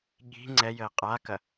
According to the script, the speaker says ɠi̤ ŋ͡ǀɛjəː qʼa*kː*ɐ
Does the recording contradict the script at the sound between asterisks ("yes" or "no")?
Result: yes